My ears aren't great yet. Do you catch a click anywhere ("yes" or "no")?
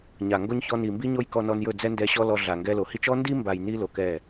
no